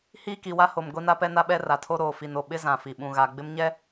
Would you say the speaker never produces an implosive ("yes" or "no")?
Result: no